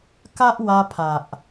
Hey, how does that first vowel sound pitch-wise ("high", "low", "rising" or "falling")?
high